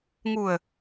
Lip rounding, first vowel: rounded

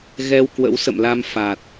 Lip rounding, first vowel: unrounded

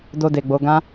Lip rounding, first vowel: rounded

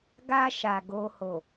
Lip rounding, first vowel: unrounded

